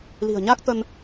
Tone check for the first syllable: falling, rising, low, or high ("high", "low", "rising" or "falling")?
low